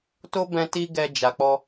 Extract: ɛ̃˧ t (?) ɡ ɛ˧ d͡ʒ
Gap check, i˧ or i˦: i˦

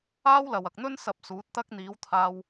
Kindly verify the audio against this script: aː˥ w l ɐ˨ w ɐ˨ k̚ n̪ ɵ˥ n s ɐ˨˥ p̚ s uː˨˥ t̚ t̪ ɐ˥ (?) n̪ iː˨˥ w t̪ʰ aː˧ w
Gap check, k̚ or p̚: k̚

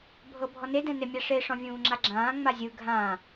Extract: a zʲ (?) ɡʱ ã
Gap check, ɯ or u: ɯ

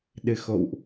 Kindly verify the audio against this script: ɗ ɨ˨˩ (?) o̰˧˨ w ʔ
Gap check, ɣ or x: x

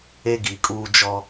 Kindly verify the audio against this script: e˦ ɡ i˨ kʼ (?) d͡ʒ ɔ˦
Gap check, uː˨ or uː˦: uː˦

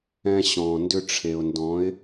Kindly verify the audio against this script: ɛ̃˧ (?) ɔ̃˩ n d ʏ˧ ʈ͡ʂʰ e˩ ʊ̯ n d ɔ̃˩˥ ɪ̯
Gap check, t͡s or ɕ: ɕ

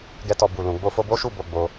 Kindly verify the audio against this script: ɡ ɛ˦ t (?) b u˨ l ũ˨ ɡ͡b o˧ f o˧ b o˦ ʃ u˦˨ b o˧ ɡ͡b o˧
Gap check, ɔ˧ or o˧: ɔ˧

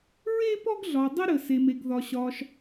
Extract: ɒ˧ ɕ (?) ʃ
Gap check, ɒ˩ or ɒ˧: ɒ˧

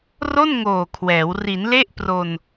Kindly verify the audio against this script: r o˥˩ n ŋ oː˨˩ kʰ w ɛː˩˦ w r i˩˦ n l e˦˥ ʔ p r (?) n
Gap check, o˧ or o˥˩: o˧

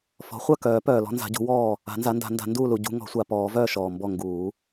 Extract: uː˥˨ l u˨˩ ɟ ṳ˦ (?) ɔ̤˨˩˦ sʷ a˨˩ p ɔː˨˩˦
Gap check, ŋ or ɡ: ŋ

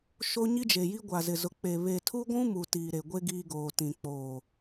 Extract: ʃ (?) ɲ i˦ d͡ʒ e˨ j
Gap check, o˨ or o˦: o˦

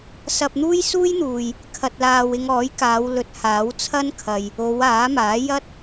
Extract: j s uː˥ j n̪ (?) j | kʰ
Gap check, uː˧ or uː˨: uː˨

